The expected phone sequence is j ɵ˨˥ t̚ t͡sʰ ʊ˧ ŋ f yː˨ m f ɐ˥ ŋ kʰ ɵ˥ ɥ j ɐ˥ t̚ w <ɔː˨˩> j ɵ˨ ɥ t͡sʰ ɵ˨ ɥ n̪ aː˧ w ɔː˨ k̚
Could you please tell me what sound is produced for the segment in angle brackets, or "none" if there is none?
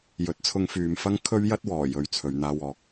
ɔː˨˩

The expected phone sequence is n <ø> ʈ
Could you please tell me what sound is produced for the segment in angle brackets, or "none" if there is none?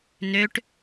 ø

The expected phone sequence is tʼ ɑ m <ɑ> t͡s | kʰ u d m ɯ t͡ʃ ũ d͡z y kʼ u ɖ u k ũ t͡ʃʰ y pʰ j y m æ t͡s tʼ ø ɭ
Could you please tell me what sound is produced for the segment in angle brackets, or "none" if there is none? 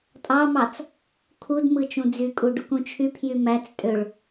ɑ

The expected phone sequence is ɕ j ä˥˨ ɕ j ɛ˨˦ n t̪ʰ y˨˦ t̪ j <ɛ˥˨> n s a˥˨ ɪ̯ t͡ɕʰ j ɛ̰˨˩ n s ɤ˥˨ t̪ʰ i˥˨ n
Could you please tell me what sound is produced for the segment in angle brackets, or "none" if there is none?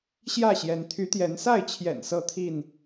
ɛ˨˦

